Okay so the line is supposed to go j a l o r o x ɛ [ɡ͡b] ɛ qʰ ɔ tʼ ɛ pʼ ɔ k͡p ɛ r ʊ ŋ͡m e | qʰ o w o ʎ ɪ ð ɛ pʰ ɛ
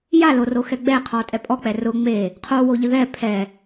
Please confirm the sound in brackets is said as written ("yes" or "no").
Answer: yes